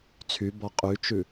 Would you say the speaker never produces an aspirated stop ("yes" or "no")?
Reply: no